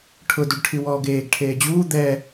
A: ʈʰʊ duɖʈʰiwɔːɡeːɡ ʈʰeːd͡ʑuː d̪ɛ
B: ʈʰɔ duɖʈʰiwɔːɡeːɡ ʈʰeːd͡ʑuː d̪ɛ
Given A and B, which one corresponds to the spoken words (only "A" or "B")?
A